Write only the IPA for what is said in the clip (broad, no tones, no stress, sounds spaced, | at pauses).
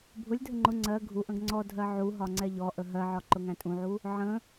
bʱ ʊ lʲ dʱ ə ŋ͡ǃ ʊ ŋ͡ǀ ɜ ɡʱ u ʔ ə̃ ɡ ŋ͡ǀ ɔ dʱ ɜ ʕ u ɦ ɒ ŋ͡ǀ ɛ ʎ ɔ ʔ ə ɦ ɜ ʕ ɒ ǃ ʊ ŋ æ̃ tʼ ũ ʕ u | ʕ ə̃